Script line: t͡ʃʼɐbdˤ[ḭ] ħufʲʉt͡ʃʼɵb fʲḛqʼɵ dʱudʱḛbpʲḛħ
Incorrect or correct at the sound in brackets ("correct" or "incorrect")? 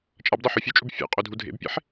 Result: incorrect